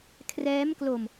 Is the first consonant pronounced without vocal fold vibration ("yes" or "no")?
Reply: yes